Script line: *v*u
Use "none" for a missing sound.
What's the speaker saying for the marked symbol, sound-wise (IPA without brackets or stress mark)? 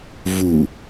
v